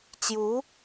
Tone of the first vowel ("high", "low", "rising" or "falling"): rising